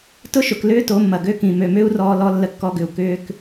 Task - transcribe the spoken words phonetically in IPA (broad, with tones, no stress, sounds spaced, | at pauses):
t ʊ˦ ʃ ʊ˨ k l ʏː˦ t o˨˦ mː ɐ˨ ɡ ø˦ k ĩ˨ m ø˨ m ʏː˦ u̯ r ɔː˧ l ɔ˧ lː ə˦ kː ɔ˦ ɡ ʏ˧ u̯ k ʏː˧ k